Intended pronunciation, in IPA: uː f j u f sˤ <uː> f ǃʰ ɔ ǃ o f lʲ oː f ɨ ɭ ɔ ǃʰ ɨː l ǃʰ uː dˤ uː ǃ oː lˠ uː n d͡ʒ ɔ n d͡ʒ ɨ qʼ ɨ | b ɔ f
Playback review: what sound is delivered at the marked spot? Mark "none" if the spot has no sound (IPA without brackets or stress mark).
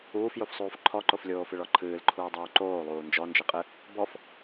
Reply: uː